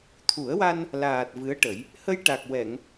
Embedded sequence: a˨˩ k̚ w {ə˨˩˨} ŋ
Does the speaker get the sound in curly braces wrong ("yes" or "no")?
yes